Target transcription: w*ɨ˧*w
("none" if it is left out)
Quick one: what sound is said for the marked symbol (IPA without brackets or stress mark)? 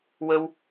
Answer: ə˧